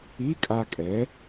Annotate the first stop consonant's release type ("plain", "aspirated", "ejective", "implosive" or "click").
ejective